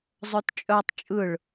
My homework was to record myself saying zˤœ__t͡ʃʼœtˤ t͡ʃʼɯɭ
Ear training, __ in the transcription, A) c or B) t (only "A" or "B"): B